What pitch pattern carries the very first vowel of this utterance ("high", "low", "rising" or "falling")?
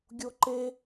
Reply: high